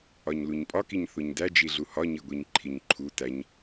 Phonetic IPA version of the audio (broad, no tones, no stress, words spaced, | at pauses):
ɒɲluɲpʼɒkiɲ θoɲdæd͡ʒi ɮuhɒɲiɡʷiɲ ǃʰiɲǃʰu tæɲ